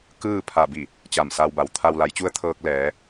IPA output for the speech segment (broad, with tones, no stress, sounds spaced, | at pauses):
k ɯː˥˨ pʰ a˧˩ b i˧˩ | t͡ɕ a˧˩ m s a˧ w b a˩˧ w t̪ʰ a˧ w l a˩˧ j t͡ɕ u˧˥ ə̯ t̪ʰ ɤː˧ k̚ l ɛː˩˧